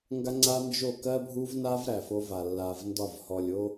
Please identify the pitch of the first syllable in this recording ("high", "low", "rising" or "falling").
high